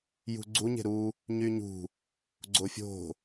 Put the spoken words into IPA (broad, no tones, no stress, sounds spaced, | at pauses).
j ṳ ɡ͡ǀ u ɲ e̤ ɾ u | ɲ y ɲ ṳ | ɡ͡ǀ o fʲ o̤